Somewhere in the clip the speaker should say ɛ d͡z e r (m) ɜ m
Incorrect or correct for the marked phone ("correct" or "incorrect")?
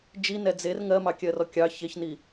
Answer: incorrect